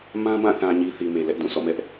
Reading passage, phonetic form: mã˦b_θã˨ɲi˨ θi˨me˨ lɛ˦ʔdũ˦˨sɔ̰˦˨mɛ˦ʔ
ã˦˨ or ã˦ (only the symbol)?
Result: ã˦˨